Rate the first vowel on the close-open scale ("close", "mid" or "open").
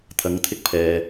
open